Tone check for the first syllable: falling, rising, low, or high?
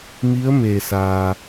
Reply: rising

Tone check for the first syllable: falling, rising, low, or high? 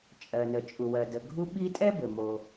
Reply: low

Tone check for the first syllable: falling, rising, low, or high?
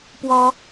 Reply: high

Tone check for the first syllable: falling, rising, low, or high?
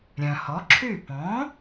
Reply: low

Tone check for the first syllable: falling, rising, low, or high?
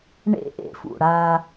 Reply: high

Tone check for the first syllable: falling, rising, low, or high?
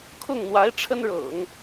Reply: falling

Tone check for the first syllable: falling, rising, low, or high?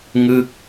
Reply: falling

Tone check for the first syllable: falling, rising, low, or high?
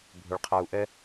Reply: low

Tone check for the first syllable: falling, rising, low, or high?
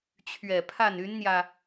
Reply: low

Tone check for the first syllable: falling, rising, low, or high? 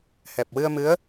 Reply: low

